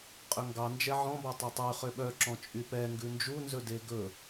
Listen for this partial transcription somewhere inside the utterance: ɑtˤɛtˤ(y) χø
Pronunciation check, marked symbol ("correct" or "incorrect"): correct